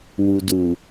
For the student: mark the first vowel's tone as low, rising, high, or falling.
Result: low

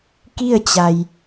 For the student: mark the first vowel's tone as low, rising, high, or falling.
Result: falling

